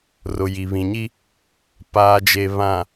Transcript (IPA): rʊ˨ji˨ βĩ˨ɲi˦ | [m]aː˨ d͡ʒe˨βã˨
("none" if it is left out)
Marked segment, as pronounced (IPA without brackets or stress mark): p